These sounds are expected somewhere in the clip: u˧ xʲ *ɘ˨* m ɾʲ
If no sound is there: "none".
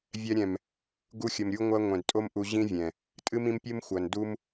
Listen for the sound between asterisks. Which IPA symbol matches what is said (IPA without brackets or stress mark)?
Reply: ɘ˨